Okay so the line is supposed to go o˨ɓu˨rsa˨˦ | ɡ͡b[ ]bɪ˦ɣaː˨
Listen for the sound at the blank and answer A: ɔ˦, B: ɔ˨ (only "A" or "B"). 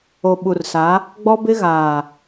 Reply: A